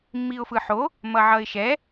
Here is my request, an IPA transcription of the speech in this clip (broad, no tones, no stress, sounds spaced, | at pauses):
mː i ʊ̯ f ɯ ħ o | m ʌ ʕ ʌ ɪ̯ ʃ ɛ